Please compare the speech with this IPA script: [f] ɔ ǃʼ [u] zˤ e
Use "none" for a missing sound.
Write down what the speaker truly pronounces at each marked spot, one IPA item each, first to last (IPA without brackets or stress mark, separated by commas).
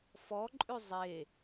f, ʉ